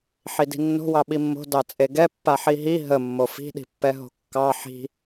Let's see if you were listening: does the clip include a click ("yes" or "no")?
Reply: no